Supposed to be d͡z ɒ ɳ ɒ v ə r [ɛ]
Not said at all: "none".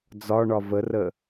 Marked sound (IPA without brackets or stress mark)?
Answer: ə